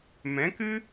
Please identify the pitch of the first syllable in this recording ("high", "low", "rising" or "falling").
rising